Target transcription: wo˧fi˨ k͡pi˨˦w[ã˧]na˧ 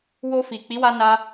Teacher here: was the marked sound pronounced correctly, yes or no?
no